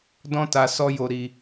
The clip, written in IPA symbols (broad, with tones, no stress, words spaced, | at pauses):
dɔ̃˦ta˧ sɔ˦jo˧ ɾi˧